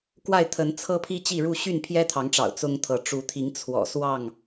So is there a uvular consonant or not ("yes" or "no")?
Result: no